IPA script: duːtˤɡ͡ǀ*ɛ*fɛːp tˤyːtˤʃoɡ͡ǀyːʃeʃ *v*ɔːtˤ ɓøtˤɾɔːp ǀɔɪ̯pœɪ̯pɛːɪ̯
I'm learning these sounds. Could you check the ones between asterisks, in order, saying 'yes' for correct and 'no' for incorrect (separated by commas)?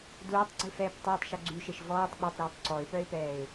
no, yes